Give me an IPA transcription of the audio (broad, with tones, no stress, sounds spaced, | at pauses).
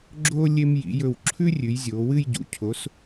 ɡ͡ǁ oː˧ lʲ e˧ m j ḭ˩˧ j ɵ˧˩ w ǁʰ ʉ˥ rʲ ʉ˩˧ j zʲ oː˩˧ w ɨ˥˧ j ɟ ṵ˩˧ cʰ o˩˧ s